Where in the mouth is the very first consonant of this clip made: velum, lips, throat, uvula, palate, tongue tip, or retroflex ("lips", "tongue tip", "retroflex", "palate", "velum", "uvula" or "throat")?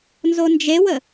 tongue tip